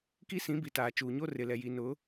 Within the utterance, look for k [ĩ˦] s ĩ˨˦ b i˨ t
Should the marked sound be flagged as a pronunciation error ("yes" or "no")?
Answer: yes